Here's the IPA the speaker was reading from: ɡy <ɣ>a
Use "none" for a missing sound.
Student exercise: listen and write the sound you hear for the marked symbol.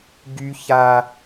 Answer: ç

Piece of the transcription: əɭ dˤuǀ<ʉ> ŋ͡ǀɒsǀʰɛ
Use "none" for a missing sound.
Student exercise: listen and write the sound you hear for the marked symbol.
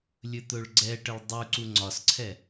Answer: u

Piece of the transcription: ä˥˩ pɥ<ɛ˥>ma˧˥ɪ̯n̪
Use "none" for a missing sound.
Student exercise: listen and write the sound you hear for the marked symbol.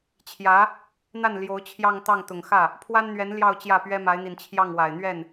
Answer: ɛ˥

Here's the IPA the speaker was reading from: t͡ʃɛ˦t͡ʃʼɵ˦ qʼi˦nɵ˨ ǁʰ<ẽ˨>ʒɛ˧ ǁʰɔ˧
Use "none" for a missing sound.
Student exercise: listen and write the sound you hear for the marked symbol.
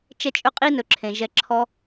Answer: ẽ˨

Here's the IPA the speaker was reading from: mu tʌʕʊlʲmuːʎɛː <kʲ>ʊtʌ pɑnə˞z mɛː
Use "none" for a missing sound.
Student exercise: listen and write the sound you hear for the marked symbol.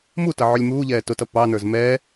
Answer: t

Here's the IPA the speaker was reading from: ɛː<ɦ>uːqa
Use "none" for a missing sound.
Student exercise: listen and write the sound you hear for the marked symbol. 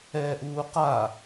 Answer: ʔ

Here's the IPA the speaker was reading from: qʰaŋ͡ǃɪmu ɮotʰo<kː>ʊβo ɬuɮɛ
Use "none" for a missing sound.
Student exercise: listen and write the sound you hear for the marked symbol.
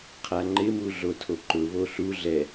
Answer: ǃ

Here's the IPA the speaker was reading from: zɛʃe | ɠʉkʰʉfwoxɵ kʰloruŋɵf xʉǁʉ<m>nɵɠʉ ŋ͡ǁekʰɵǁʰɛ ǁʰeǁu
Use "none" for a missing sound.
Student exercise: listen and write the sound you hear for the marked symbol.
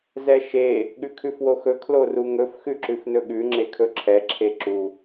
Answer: f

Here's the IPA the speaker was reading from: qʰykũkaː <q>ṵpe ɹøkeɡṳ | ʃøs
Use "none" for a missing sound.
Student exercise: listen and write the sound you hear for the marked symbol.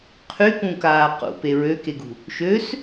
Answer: q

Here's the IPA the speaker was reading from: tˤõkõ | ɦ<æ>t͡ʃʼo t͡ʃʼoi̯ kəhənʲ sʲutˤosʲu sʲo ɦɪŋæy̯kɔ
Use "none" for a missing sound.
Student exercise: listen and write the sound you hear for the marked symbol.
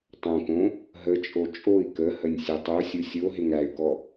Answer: ə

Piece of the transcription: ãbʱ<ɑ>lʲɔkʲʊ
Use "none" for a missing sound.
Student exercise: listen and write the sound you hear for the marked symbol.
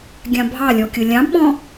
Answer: ɑ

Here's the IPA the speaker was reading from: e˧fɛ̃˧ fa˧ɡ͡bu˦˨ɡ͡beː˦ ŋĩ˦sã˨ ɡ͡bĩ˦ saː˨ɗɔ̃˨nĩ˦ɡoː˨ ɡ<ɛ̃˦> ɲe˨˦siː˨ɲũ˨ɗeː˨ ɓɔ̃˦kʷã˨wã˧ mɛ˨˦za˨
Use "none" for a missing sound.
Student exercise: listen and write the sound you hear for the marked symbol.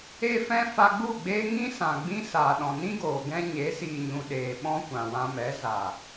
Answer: ɛ̃˦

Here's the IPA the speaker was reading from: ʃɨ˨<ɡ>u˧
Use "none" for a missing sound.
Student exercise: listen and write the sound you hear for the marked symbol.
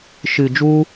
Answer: d͡ʒ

